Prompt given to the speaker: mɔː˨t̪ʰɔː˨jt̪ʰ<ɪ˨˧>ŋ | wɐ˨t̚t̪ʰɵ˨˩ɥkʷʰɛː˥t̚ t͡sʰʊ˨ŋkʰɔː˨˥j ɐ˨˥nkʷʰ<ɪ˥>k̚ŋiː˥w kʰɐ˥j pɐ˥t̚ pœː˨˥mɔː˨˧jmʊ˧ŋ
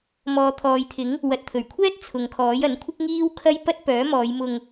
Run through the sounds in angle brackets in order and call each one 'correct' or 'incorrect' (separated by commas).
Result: incorrect, correct